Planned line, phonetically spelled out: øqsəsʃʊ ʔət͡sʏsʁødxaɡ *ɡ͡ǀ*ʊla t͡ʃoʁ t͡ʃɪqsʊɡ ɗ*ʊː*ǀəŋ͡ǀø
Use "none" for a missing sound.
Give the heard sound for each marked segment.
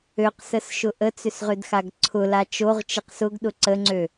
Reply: ǀʰ, ʊ

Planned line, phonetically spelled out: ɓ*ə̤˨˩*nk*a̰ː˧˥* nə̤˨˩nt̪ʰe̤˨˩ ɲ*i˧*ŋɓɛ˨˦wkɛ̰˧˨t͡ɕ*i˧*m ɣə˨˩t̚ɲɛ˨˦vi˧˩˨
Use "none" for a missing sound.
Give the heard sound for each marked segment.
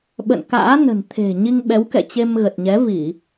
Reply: ə̰˧˨, a̰ː˧˥, i˧, e˧

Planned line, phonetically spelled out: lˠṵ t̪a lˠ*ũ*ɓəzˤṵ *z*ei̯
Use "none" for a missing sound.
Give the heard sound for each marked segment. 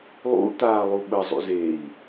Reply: u, z

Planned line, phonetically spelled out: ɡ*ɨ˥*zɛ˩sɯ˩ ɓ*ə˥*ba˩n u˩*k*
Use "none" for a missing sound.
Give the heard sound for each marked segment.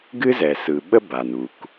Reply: ɨ˥, ə˥, k

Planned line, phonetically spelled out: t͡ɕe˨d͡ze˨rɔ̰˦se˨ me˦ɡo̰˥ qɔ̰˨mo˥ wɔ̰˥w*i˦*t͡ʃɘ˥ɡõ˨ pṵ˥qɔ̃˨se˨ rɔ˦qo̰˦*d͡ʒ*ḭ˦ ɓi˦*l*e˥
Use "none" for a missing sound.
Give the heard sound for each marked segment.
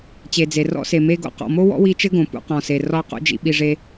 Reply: i˦, d͡ʒ, ʐ

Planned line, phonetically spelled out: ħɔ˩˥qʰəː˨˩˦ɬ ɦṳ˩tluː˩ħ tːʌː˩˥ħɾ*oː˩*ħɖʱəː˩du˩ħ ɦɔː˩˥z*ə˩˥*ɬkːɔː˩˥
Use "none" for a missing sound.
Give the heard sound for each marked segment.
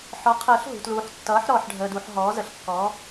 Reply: ɔː˩, ə˩˥

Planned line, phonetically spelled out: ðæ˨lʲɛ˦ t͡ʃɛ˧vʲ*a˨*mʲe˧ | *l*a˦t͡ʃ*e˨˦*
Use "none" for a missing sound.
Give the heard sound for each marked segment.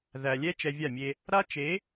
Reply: a˦˨, ɾ, e˨˦

